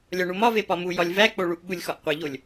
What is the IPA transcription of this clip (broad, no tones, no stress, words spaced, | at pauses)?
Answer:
lʲɒɳumɒve pɒmu jɒlʲvæk͡poɭuʔ ɓulʲxɒʔqʷiʎolʲ